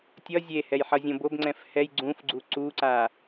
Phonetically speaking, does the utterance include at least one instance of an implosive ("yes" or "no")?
no